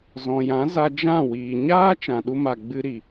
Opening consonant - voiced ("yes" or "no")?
yes